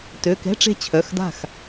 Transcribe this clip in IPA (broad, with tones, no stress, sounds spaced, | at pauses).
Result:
t ø˩˧˩ k ɛ̤˧˥˧ ʈ͡ʂ e̤˥˩ t͡ɕʰ œ˩˧˩ x d a̤˥˩ x